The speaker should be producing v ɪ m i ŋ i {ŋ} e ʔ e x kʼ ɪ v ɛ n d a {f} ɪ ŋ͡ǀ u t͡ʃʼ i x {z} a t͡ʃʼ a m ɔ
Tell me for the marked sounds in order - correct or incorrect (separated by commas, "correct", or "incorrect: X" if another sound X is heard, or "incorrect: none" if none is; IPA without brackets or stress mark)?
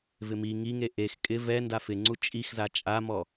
correct, correct, correct